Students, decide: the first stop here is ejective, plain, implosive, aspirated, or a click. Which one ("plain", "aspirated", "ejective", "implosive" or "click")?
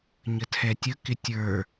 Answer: aspirated